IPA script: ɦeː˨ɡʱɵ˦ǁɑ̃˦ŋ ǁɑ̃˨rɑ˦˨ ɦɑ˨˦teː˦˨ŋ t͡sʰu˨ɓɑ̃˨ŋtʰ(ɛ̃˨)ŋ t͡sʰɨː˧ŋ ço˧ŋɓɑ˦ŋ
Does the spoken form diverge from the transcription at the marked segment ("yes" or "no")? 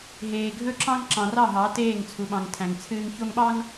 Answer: yes